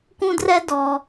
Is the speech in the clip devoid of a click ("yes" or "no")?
yes